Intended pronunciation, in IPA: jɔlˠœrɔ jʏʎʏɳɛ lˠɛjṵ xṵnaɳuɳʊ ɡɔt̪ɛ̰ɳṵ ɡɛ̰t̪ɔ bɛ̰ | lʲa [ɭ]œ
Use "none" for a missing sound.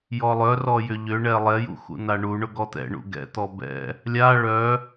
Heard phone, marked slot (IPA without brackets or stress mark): ɭ